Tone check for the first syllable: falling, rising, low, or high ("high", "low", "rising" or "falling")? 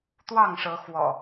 falling